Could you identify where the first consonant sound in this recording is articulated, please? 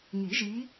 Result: velar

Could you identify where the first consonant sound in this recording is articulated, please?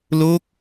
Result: alveolar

